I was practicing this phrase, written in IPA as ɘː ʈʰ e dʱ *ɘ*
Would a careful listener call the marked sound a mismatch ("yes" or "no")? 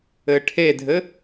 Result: no